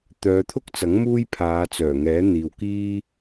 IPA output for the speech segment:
t̪ œː˨˧ t̪ʰ ʊ˥ k̚ t͡s ɐ˨˥ ŋ m uː˥ j pʰ aː˨˧ t͡s œː˨˩ ŋ ɛː˨˥ n̪ iː˨ w k iː˥

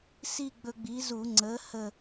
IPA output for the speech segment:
s i˥˧ ɡ͡b ɵ˧ ɡ͡b i˨˥ z u˧˩˧ ŋ͡ǀ əː˨˥ h ə˧˩

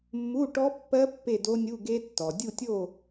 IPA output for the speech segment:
mː u˧˥˧ ʈ ɔ˦˥ pː ɜ˦˥ pː e˥˨ d o˦˥ nʲ u˧˥˧ ɡ e˦˥ tː ɔ˩ dʲ u˥˨ tʲ o˥˨

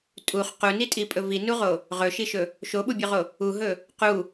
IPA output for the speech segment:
tʼ u χ q u n i tʼ i pʼ ɵ v i n u ʁ o | ʁ ɵ ʃ i ʃ ɵ | ʃ o ɓ u bʲ o ʁ o | u ɦ ɵ | q u

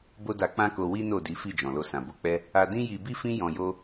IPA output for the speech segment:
b o˦ d a˧ k͡p ã˦ k o˧ w i˦ n o˦˨ d i˨˦ f i˦˨ d͡ʒ ɔ̃˨ l o˧ s ã˨ b o˧ k͡p ɛ˦ | a˧ d ĩ˦ j i˧ b i˦ f ĩ˦ j ɔ̃˧ j o˦

